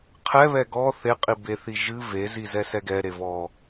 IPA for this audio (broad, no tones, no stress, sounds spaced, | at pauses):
qʰ ɛ β ɛ ɡ ɔ θ e qʼ i b e θ i ʒ ɨ v e z i z ɛ s ɛ ɡ ɛ ɾ e v ɔ